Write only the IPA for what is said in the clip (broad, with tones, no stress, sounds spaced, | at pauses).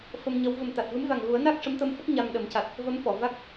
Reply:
f ə˧ m ɲ ə˧˥ w v ə˨˩ m t̪ a˨˩ t̚ v ɨ˧˥ m v a˨˩ ŋ ɣ u˨˩˦ ə̯ n a˦˥ k̚ ʂ ə˧˥ m t̪ ə˧ m f ə˦˥ k̚ ɲ a˧ m ɗ ə˨˩˦ m c a˨˩ t̚ | v ə˧˥ m f ɔ˨˩˨ v a˦˥ k̚